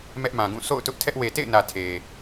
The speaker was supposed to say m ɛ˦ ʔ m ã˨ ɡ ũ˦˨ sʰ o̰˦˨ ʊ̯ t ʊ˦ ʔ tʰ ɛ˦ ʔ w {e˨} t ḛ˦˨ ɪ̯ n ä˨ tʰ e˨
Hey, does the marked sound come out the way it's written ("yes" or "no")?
yes